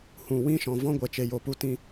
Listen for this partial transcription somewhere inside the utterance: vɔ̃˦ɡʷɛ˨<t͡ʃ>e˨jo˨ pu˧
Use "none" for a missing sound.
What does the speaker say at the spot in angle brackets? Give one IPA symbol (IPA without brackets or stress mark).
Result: t͡ʃ